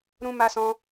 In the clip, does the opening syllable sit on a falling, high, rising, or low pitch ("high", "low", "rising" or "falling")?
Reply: high